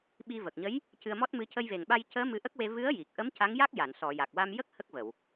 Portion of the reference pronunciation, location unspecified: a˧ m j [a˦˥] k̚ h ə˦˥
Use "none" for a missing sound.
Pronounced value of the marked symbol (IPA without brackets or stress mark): ə˦˥